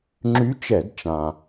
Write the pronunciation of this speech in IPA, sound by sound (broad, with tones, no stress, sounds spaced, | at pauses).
ŋ͡ǁ y˧˥ t͡ʃ ɛ˧˩˧ d t͡ʃ ã˩